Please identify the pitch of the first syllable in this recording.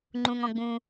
low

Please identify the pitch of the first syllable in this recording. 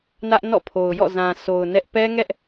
high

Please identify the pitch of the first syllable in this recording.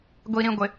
low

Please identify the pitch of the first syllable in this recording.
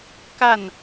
falling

